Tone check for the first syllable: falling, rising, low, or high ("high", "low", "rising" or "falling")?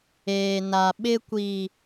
low